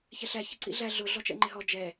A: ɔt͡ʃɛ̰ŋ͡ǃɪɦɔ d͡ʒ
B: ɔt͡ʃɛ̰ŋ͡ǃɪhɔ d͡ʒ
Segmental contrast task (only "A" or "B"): A